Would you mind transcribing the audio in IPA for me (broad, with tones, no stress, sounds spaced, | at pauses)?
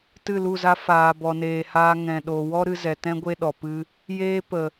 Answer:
t ɨ˦˨ l u˦˨ z a˦ f aː˨ b ɔ˨ n eː˨ h aː˧ ŋ ɛ̃˨ ɗ o˨ w ɔ˦ ɾ ɨ˧ z ɛ˨ t ɛ̃˦ ɡʷ e˦ ɗ ɔ˨ p ɨ˦ | j eː˦ p ə˨